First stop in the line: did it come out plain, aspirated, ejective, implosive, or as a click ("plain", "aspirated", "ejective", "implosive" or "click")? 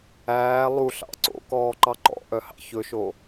click